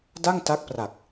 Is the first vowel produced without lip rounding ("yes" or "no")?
yes